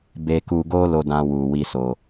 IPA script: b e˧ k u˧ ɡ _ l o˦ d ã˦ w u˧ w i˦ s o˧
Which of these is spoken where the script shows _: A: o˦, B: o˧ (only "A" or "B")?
A